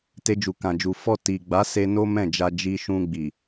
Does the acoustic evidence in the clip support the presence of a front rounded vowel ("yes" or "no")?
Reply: no